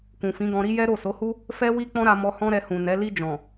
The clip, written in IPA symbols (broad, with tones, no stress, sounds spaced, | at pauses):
k ũ˨ f ĩ˨˦ ɡ ɔ̃˧ ɾ i˦ j ɛ˦ ɾ o˦˨ s o˨˦ h u˦ | f ɛ˦ w i˦ k͡p ɔ̃˦ ɾ a˧ m ɔ˧ h ɔ̃˦ ɾ ɛ˧ h ũ˨ n ɛ˨˦ l i˧ d͡ʒ ɔ̃˨